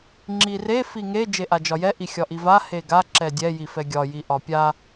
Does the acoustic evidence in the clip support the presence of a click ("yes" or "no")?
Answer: yes